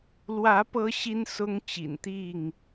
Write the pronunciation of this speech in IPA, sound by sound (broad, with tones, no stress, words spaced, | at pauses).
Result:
lwä˨˦ pɤ˦ɕi˦n sʊ˦ŋt͡ɕḭ˨˩nt̪i˥˨ŋ